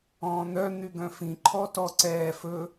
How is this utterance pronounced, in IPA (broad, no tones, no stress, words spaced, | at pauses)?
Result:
ɔ̃ːn̪œ n̪yɡœ̃fĩ ǃʰɔtɔǀɛː fɵ